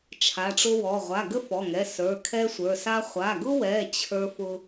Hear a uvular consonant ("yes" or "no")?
yes